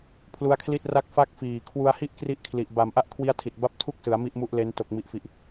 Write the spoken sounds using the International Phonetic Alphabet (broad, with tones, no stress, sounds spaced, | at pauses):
pʰ l u˦˥ a̯ kʰ l i˥˩ t̚ r a˥˩ k̚ f a˥˩ k̚ f iː˨˩ kʰ w u˧ a̯ h i˥˩ ʔ k r i˦˥ ʔ kʰ l i˨˩ ʔ b a˨˩ m ʔ a˥˩ ʔ kʰ w i˦˥ a̯ tʰ i˨˩ t̚ b a˦˥ p̚ tʰ u˥˩ k̚ s ɯ˩˦ a̯ m i˥˩ ʔ m u˦˥ ʔ l e˦˥ n t o˨˩ k̚ m i˨˩ ʔ f i˨˩ ʔ